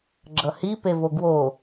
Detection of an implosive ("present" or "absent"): absent